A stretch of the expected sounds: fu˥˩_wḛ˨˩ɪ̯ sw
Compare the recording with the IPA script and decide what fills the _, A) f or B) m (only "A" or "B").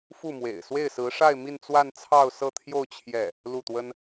B